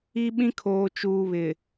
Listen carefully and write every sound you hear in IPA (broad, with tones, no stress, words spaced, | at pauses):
i˦ɓĩ˦ kʰoː˨t͡ʃuː˨ βɪ˨